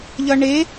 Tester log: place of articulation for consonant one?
palatal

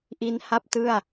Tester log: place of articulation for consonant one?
glottal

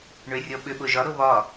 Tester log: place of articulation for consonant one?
retroflex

